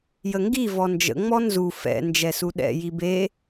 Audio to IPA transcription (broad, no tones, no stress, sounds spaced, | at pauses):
j ə ŋ ɡ i v ɔ n d͡ʒ ə̰ ŋ͡m ɔ n z u f ɛ̰ n d͡ʒ ɛ s u ɗ ɛ̰ j i b e